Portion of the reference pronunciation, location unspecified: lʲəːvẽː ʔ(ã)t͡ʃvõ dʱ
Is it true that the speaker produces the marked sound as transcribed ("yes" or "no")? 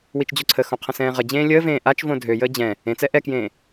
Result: no